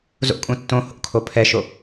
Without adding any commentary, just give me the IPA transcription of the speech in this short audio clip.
z o̰ kʼ ũ tː õ h o̰ kʰ o pʰ ɛ ʃ o

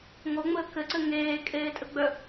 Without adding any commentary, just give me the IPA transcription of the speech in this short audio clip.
ŋ o ŋ͡m əː k ɘ ǀ ɘ ŋ eː kʼ eː tʼ ə ɡ͡b œ

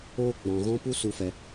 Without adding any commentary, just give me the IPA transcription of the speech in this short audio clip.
oː˧ ɡ͡b ɔ̃˨ ɣ ɔ̃˧ p u˦ s u˧ f ɛ˧

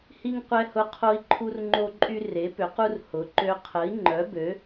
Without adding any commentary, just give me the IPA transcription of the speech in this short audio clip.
h i˦ ŋ qʷ ɛ˦ h ʊ˦ qʰ o˦ i̯ ǃʰ u˦ r ŋ͡ǃ o˦ ǃʼ y˦ r e˨˦ p ʏ˨˦ q u˦ r h ʊ˨˦ ǃ ø˦ qʰ ə˨˦ i̯ ŋ͡ǃ œ˨˦ b ø˨˦

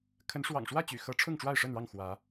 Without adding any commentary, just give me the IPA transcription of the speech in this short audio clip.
kʰ ə˨˦ n ʂ w ɑ̰˨˩ ŋ ʂ w ä˥˨ t͡ɕ y̰˨˩ x ɤ˨˦ ʈ͡ʂʰ ʊ˥˨ ŋ ʈ͡ʂ w a˥˨ ɪ̯ ʂ ə˥˨ n ɻ ɑ˥˨ ŋ x w ä˨˦

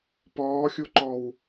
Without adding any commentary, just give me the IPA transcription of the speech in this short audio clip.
p ɔː xʲ u ǃ ɔ w

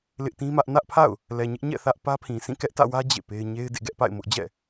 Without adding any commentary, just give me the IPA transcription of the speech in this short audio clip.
l ɪ˦ ʔ t ĩ˦ m ä˦ ʔ n ä˦ ʔ pʰ a̰˦˨ ʊ̯ | l ɛ˨ ɲ ɪ˦ ʔ ɲ ɛ̰˦˨ θ ä˦ ʔ p ä˦ pʰ ĩ˨ s ĩ˦˨ k ɛ˦ ʔ t ä̰˦˨ w ä˦ d͡ʑ ḛ˦˨ p e˦ ɪ̯ ɲ e˦ ɪ̯ d ḛ˦˨ ɡ ɛ˦ ʔ p a̰˦˨ ɪ̯ m ʊ˦ ʔ d͡ʑ ɛ̰˦˨

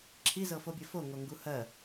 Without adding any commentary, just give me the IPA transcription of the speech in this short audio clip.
ǁʰ i z ɤ f o bʲ ɜ f o ŋ o ŋ ɡ u h ɜ

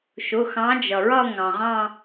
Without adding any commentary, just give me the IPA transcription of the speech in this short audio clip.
ʃ ʊ˩˧˩ x ɑ̃˨˦ d͡ʒ ʌ˩ ɹ ʌ˦˨ ŋ ɑ̃˩ ʁ ɑ̃˦˨

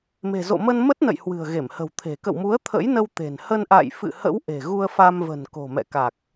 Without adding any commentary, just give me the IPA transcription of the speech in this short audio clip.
m e̤˨˩ z o̰˧˨ m ə˧ n m ə˦˥ t̚ n ə̰˧˨ j h w ɨ̤˨˩ ə̯ ɣ e˧˩ m h ə̤˨˩ w t̪ʰ e̤˨˩ k ə̰˧˨ w m u˨˦ ə̯ t̪ʰ ə̰˧˥ j n ə˧ w t̪ e̤˨˩ n h ə˧ n ʔ a̰˧˨ j f ɨ̰˧˨ h ə̰˧˥ w ʔ e̤˨˩ ɣ u˧ ə̯ f a˧ m v ə̤˨˩ n k o̤˨˩ m ɛ̰˧˨ k a˨˩ k̚

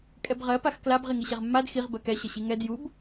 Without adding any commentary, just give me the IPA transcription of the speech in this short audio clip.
kʼ ɛ b ʁ ɜ p a x k l a b ʁ i ŋ i ɕ ɛ ʁ mː a d x i ʁ b ɜ k ɛ ɕ ə ɕ i ŋ ɛ d j u b

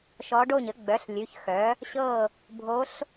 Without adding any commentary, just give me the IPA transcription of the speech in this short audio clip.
ʃ ɔ˧˥ ɖ o˥˨ ɲ ə˩˥ ɡ͡b œ˩˥ ɬ lʲ ʉ˩˧˩ ç x œ˩˥ | ɕ ɤ˥˨ | bʱ o˧˥ ɬ

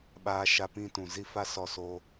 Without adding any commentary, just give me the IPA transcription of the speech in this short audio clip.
ɓ aː˦ ʃ a˦ p ĩ˦ t ũ˨ z i˦ f a˦ s ɔ˧ s oː˧

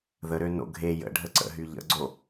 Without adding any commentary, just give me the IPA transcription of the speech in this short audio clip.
ð ə ɾ ø n o̰ ɡʱ e j ə̰ ɖʱ ə ǀ ə̰ ɦ y ʎ ə̰ ɡ͡ǀ o

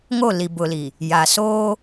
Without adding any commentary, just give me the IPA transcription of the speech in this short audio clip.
ŋ o˦˨ l i˨ b ʊ˨ l i˨ | j a˨ s oː˦

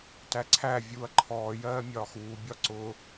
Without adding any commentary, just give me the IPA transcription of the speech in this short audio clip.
t æ ǀʰ æ vʲ uː ɐ̯ ǃʰ ɔː j ɜː mʲ ɒː x uː bʲ ɒ ǀ ʊ

